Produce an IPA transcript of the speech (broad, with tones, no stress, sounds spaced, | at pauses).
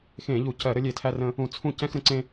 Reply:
x ẽ˧˩˧ ʎ u˧˩˧ c ɜ˧˩˧ ɾ ə˦ lʲ e˧˩˧ tʰ æ˦ r ə̃˦ | ũ˧˩˧ t͡sʰ ũ˥˩ c ɛ̃˦ x ɾ ə̃˨˥ ǀ ẽ˦